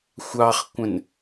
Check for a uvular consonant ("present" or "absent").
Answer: present